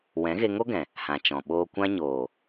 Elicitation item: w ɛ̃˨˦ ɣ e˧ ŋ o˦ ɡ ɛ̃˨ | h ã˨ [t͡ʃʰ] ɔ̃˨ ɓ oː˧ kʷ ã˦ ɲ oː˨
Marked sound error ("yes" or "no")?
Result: yes